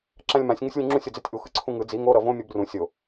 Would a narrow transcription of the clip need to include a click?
yes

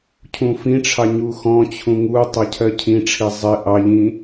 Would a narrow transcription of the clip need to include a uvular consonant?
no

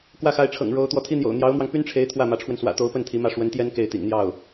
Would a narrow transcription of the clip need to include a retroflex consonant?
yes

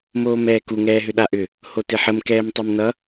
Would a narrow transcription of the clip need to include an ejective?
no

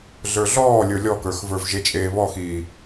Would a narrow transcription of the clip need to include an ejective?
yes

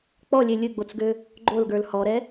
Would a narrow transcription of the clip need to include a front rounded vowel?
yes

